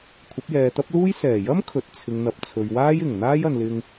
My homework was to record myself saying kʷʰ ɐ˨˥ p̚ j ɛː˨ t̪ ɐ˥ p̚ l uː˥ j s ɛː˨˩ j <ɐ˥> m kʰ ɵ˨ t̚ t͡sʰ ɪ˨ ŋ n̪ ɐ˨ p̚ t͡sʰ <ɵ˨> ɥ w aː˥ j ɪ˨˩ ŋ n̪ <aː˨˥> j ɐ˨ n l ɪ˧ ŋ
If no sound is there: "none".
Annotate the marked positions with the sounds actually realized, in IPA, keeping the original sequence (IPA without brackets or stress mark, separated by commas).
ɐ˥, ɵ˨, aː˥